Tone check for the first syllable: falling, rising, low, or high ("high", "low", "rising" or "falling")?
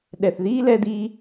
low